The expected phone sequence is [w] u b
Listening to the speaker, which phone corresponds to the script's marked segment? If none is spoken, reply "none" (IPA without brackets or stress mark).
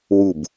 w